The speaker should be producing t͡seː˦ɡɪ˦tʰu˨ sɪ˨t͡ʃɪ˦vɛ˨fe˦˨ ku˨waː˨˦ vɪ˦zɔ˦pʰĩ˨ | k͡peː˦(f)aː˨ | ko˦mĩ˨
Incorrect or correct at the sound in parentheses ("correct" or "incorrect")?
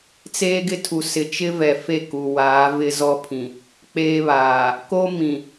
incorrect